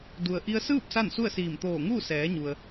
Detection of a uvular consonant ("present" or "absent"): absent